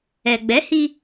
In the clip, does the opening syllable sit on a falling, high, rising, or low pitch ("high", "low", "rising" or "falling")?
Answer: low